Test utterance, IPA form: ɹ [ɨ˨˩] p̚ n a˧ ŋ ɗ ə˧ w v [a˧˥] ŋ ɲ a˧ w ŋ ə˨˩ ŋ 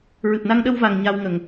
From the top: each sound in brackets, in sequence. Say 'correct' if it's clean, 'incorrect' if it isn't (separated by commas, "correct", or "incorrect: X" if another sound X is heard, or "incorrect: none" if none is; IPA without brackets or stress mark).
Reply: correct, incorrect: a˨˩